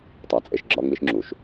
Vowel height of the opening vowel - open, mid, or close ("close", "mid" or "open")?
open